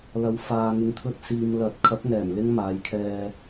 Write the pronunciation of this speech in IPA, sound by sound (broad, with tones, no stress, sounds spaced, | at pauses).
l ɐ˨˥ w f aː˨ ŋ ɪ˨ ŋ t̪ʰ ɵ˧ t̚ s iː˨ m l ɐ˨˥ t̚ kʰ ɐ˨˥ p̚ ŋ ɛː˨˩ m l ɪ˥ ŋ m aː˨˧ j kʰ ɛː˧